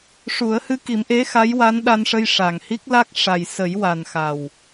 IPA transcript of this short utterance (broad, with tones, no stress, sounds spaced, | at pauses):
ʂ u˨˩˦ ə̯ h ɨ˧ k i˨˩˦ m ʔ e˧˥ x a˧˥ j w a˧˥ n ɗ a˧ n ʂ ə˧ j ʂ a˨˩ ŋ h i˦˥ k̚ l a˦˥ k̚ ʂ a˨˩ j s ə˨˩˦ j w a˨˩ n x a˨˩ w